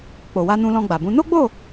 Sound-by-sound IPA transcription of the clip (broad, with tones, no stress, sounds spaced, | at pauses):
k͡p o˨ w a˧ n ũ˧ l ɔ̃˧ ɡ͡b a˨ b ũ˨˦ n o˦ ɡ͡b o˦˨